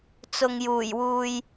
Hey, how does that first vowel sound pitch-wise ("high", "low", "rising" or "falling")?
low